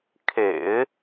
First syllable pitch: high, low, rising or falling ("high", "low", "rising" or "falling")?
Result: low